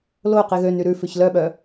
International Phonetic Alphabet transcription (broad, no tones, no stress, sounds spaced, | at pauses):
l o q i ɣ ø n y ɾ ʉ f ʉ ç l œ ɓ œ